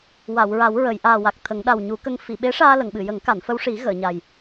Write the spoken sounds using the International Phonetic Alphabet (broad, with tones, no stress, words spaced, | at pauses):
wa˨˩˨wɹa˨˩˦wɹə˨˩˨j ʔaː˨˩wa˨˩k̚ t̪ʰə˨˩˦ŋ ɗa˨˩wɲu˨˩˦kə˧ŋ fi˨˩˨ɓe˧˥ʂaː˧ lə˨˩˨ŋɓɨ˨˩˨jə˨˩˦ŋ ka˨˩˨nfə˧wʂi˨˩˦ ɣəː˨˩˨ɲa˨˩j